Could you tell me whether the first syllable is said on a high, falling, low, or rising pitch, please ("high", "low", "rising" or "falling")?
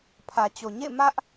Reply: low